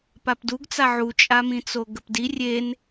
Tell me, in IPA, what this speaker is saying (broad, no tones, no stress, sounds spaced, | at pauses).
p a p d u ɡ t͡s a ʕ u t͡ʃʼ a m ĩ t͡s o ɡ ə p d i rʲ e n